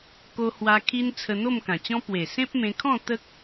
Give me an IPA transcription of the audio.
k o˧ h w a˧ kʰ i˦ n t͡sʰ ə˧ n̪ o˥˧ m k ã˨˩ t͡ɕ ɔ̃˦ p w e˨˩ s ẽ˦ p̚ m ẽ˧ kʰ ɔ̃˥˧ t̪ ə˦ k̚

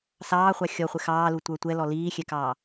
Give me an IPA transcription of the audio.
s ɑː χʷ ɑ xʲ ɔ χʷ ɪ x ɑː l u tʷ ə˞ tʷ ɛ l ɔ l iː xʲ ɛ k ɑː

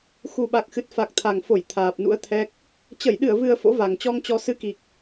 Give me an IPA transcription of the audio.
x u˨˩ ɓ a˨˩ k̚ x ɨ˨˩ t̚ f a˨˩ k̚ t̪ʰ a˨˩ ŋ f o˧˩ j t̪ʰ aː˨˩ p̚ n ṵ˧˥ ə̯ t̪ʰ ɛ˦˥ k̚ | t͡ɕ ə˧˩ j ɗ ɨ˧˩ ə̯ v ɨ˨˩ ə̯ f o̰˧˥ v a˨˩ ŋ t͡ɕ ɔ˧ ŋ t͡ɕ ɔ˧ s ɨ˨˦ k i˨˩ k̚

